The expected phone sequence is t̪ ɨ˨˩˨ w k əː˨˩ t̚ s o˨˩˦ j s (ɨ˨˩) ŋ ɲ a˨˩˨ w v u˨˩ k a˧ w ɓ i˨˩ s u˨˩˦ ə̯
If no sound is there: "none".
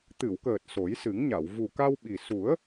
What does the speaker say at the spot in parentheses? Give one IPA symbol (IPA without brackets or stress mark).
ɨ˨˩˦